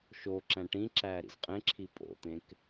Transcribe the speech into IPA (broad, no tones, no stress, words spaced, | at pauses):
ʃoǁæ̃ ʈĩǁæːɾḭz qʼẽǁʰi pʼo̰t̪ẽk